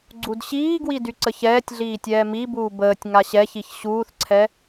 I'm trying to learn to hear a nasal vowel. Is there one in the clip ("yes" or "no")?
no